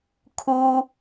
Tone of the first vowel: high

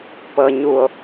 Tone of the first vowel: low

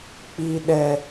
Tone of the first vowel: low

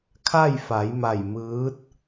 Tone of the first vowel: falling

